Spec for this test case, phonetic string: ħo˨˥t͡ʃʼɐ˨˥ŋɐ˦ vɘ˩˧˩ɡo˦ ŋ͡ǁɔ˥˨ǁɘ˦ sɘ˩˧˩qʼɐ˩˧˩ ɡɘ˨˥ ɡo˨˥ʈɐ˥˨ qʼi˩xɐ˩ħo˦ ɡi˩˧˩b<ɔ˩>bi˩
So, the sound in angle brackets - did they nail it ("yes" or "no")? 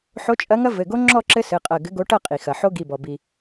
yes